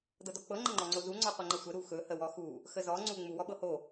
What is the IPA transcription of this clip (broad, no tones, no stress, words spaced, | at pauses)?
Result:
dɤdɔk͡pɤ ŋ͡ǃəŋ͡ǃɔŋ͡ǀozu ŋ͡ǀɔqʷəŋ͡ǃəsʷə ɾuxɵ həwɔxu | xəzɔ ŋ͡ǀu ŋ͡mu wɔɓɤho